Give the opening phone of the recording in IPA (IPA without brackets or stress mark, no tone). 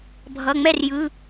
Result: bʱ